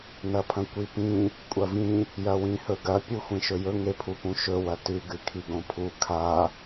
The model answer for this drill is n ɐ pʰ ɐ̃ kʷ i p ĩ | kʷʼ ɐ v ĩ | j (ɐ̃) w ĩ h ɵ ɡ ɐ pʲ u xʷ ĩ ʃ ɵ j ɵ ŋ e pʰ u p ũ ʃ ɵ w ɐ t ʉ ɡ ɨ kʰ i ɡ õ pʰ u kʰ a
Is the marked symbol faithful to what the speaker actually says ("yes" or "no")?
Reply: no